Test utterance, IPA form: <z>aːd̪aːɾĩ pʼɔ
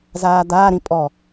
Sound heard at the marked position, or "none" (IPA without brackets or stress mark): z